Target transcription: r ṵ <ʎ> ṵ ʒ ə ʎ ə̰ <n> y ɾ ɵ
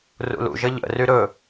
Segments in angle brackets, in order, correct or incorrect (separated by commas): incorrect, incorrect